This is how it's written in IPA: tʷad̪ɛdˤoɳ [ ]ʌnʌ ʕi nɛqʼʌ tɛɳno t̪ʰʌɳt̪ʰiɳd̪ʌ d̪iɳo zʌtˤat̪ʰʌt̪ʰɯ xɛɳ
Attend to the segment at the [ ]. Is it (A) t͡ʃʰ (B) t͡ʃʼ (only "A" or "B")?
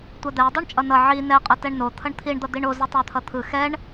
B